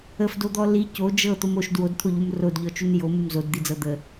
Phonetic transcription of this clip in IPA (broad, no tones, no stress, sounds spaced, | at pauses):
ə f d o d̪ ɔ l i c o d͡ʒ ɤ t̪ o m o ʃ d w o d t̪ʰ o ʎ u m r o d ʎ ɔ t͡ʃ u n j o m u m z o d d̪ i d͡z ɤ d̪ ə